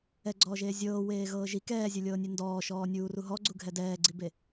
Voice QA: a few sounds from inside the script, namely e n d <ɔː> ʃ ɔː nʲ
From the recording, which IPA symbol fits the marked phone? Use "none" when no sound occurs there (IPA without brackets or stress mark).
ɔː